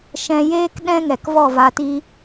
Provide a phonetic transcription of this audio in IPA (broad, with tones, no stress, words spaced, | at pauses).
ʃɛ̃˧jeː˦k ɗɛ̃˦ ŋɛ˨kvɔ˦˨va˧ti˦